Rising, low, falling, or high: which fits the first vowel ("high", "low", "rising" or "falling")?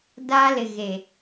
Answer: high